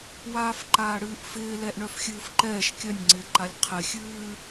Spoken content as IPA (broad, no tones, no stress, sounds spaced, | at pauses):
w aː f ǃ aː ɽ ɨː ʔ f ɪː l ɛ ʔ ɳ œ f xʲ ɨː f ǃ ɛː ʃ kʲ œ nʲ ŋ͡ǀ ɪː ǃ a lʲ qʰ ɪ xʲ ɨː